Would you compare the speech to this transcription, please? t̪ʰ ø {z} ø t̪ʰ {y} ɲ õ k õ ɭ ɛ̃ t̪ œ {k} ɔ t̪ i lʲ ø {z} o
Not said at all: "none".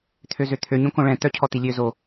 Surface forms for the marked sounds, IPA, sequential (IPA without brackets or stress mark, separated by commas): z, ø, cʰ, z